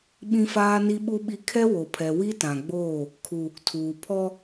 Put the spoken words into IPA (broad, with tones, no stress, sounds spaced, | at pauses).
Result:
ɓ ĩ˦ f aː˦ n i˦ ɓ u˦ ɓ i˦ kʰ ɛ˦ w o˨ pʰ ɛ˨ w i˦ t ã˨ ɡ͡b oː˦˨ | kʰ u˨ | tʰ uː˨ pʰ ɔ˦